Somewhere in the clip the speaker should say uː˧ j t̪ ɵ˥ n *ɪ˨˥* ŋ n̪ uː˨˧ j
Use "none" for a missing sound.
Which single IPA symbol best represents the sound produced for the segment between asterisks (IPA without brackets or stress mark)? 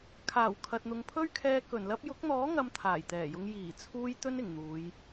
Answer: ɪ˨˩